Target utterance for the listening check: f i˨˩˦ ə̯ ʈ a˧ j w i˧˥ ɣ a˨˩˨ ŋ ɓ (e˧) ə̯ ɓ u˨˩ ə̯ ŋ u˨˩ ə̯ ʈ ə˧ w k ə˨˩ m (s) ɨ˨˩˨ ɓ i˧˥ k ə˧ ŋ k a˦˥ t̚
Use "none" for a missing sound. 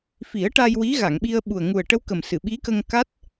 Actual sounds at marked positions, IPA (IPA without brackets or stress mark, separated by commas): i˧, s